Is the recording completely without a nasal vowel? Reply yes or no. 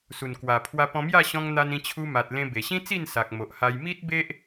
no